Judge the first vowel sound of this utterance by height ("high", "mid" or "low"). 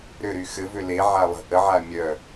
high